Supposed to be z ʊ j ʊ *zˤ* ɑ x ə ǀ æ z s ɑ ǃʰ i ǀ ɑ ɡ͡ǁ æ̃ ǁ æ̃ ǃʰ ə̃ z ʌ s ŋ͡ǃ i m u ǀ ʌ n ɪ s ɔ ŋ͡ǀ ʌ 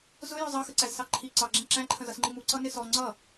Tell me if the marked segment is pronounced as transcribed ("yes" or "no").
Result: yes